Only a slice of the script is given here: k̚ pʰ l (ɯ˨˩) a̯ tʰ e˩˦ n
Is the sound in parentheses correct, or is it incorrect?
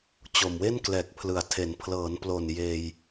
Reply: correct